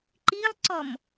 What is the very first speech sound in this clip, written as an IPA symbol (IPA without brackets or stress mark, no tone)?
ǃ